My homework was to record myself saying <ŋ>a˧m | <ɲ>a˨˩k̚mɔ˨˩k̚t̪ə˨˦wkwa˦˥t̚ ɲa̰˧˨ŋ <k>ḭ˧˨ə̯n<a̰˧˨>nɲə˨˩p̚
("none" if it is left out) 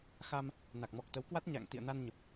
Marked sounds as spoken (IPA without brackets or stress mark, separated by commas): x, n, t̪, a˧